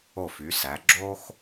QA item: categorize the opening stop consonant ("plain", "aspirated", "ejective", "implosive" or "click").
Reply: click